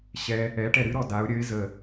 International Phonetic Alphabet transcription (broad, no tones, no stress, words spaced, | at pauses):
ɕɛ | ɛʈɛ ɾɨɾɔ daʊ̯ ɾʲəɪ̯ zə